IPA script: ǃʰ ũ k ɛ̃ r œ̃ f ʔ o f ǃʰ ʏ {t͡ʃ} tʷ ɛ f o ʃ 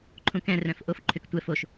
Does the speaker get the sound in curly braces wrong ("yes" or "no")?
yes